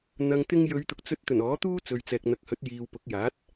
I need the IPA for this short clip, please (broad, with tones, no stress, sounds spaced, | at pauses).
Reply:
n̪ ɐ˨ ŋ t̪ ɪ˧ ŋ j ɵ˨˧ ɥ t̪ ʊ˨ k̚ t͡s ɵ˧ t̚ t̪ ɵ˨˩ n ɔː˨˥ t̪ uː˥ t͡s ɵ˨ ɥ t͡s ɛː˨ k̚ n̪ ɐ˨˥ k̚ h ɵ˨˥ t̚ j iː˨ w p ʊ˨˥ k̚ j aː˨˥ t̚